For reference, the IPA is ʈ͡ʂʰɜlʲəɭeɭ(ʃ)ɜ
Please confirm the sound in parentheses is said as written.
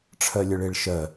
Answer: yes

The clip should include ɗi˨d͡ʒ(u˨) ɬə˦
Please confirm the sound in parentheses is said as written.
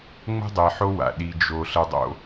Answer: no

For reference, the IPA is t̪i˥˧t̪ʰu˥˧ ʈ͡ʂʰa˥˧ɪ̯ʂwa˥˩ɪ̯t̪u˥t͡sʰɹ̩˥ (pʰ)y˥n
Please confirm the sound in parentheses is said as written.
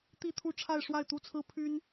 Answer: yes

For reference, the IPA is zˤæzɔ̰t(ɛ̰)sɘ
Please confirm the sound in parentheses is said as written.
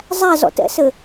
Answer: yes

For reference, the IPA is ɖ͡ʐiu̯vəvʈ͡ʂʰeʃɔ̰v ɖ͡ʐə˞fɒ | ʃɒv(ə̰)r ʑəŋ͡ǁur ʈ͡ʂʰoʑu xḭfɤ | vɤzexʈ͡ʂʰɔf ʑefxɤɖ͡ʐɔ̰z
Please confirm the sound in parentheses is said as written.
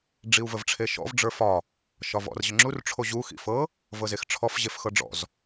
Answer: no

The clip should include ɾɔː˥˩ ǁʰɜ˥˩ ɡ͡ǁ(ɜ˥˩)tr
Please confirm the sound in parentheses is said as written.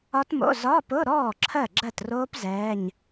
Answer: yes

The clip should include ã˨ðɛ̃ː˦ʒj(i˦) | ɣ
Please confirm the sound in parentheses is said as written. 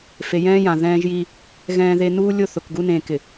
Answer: yes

